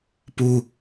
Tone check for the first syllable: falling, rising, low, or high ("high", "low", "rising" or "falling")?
high